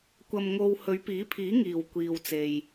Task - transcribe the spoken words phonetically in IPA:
kʷ ɐ˧ m ŋ o˧ w h ɵ˨˧ ɥ p iː˨˥ pʰ iː˨˥ ŋ iː˨ w kʷ iː˧ w t͡s e˧ j

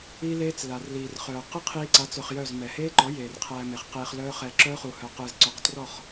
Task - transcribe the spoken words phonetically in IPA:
i˦ l eː˦ t͡s l a˨ r l iː˨ r χ œː˨ q ɯ˦ qʰ iː˧ ǀ a˨˦ t͡s œ˧ χ j œ˦˨ z m ɛ˨ h eː˦ ǃ ɔ˨˦ j eː˨ r qʰ æː˧ m e˨ χ q eː˧ χ l œː˦ χ ɛ˧ ǁ œː˦ χ u˨ h œ˨ q ɯː˨ z ǀ œ˨˦ q t r ɔ˦˨ χ

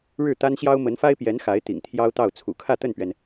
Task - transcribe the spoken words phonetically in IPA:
ɻ ɻ̩˥˩ t̪ a˥ n ɕ j ɑ˥ ʊ̯ m ə˧˥ n f a˥ ɪ̯ p j ɛ˧˥ n x a˧˥ ɪ̯ t̪ ḭ˨˩ ŋ t̪ʰ j ɑ˥ ʊ̯ t̪ ɑ˥˩ ʊ̯ t͡sʰ ṵ˨˩ kʰ ä˥˧ t̪ ə˥˩ n p ɥ ɛ˩ n

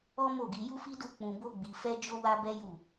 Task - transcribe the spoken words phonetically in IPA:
ɔ˦ m o˦˨ ɡ i˧ j u˦ f i˦ d u˦˨ k͡p ũ˨ b o˧ ɡ͡b i˧ f ɛ˧ d͡ʒ o˦ w a˦ b ɛ˦ j u˦˨

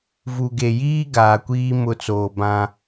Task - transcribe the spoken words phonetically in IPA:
v u˨ ɡ e˨ j iː˦ ɡ aː˨ kʷ iː˦ m ʊ˨˦ t͡s oː˨ b ã˦

